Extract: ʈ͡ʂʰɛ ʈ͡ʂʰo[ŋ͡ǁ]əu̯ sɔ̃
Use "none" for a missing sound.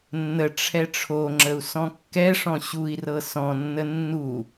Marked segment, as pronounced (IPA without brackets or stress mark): ŋ͡ǁ